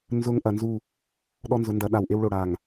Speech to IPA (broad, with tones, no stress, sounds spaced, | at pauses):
n z ʊ˦ ŋ ʔ ɐ˨ n z u˦˨ | ɗ ɔ˦ n z ʊ˨˦ n d ɐ˨˦ ɗ a˨ w ʔ e˦ w ɭ o˨ ɽ a˨ ŋ